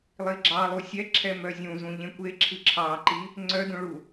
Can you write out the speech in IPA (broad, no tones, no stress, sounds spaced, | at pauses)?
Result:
lˠ i ɡ͡ǁ ɑ lˠ u sʲ ɛ ǁʰ ɛ m œ zʲ ũ z ũ ʎ ẽ kʷ e ǁʰ ɨ ǁʰ ɑ ǃ i | ŋ͡ǀ œ d ũ ɭ u